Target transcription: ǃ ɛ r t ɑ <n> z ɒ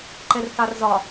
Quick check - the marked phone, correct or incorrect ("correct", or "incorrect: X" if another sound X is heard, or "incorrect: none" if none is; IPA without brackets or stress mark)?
incorrect: r